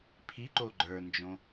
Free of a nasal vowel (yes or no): no